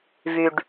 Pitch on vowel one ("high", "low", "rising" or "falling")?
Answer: low